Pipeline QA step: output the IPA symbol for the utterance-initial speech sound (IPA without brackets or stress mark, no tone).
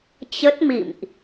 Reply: t͡ɕ